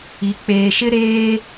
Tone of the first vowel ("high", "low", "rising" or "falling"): low